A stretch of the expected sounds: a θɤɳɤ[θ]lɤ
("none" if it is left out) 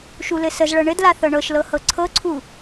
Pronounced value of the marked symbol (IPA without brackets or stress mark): ʃ